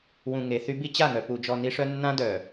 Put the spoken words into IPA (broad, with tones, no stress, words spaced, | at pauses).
wũ˨ŋe˨θy˦ bi˦t͡ɕa˦˨ŋœ˨ pu˨d͡ʒɔ˨ ni˦ʂœ˦ nːã˦dœ˨